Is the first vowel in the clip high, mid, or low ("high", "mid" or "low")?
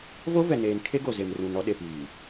mid